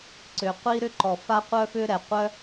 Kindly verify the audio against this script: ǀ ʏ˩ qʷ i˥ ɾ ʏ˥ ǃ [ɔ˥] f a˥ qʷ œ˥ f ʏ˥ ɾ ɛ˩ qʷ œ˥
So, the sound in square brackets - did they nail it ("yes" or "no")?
no